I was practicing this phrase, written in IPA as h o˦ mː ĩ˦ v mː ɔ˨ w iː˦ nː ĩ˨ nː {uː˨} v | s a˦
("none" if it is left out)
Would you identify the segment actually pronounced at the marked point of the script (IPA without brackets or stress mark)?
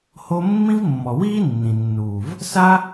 uː˨